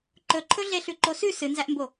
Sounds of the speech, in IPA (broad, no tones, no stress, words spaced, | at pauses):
ǃɵǃʰɵ ɮeɬʉǃosʉ sɨnzæʔmbo